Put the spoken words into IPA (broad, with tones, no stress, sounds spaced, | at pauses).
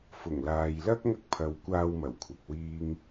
f ʊ˨˩ ŋ l aː˨ j l ɐ˥ k̚ ŋ ɐ˥ k̚ pʰ ɐ˨˧ w kʷ aː˧ w m ɐ˨˩ w kʷʰ ɐ˨ k̚ w iː˥ ŋ